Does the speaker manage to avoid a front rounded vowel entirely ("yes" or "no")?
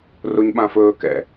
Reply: yes